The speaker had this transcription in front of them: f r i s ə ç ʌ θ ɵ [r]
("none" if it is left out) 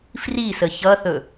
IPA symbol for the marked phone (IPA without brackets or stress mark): none